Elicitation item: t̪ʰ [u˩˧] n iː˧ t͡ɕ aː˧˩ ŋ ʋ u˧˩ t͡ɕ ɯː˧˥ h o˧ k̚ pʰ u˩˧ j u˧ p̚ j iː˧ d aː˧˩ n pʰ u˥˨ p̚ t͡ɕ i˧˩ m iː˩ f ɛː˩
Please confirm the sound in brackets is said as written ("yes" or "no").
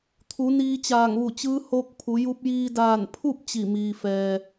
yes